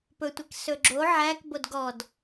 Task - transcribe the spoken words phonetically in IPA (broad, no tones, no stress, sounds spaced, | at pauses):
p ɵ tʷ i k s ɵ ɡ͡ǁ o ʕ æ k b o d ɡ ɔ d